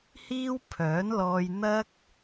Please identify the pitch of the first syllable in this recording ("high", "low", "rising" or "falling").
high